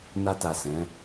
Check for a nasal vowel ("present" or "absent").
present